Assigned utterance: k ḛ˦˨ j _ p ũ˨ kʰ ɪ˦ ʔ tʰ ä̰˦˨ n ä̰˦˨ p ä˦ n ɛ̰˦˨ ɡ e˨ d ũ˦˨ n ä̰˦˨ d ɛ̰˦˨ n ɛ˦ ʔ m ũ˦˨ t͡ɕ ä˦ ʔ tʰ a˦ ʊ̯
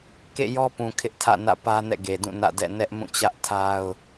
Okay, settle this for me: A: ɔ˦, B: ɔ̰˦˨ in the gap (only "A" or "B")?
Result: A